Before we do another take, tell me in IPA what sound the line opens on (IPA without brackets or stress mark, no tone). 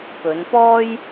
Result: p